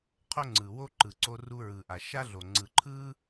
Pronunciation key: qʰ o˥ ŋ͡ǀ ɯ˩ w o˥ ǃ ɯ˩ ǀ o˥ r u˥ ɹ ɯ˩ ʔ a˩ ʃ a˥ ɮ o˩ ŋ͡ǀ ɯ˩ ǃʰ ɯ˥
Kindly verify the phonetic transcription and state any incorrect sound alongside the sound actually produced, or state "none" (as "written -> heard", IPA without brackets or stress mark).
none